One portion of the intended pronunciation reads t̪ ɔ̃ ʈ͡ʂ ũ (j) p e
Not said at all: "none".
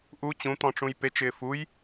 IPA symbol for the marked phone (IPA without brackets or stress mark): j